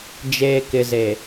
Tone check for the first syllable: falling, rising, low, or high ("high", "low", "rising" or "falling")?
low